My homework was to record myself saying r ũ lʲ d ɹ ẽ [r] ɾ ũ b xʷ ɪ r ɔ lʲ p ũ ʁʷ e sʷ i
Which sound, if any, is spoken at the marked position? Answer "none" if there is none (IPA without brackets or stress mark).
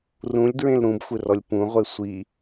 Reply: l